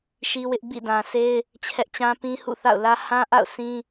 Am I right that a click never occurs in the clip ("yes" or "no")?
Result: yes